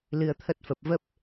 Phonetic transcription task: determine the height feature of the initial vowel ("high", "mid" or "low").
high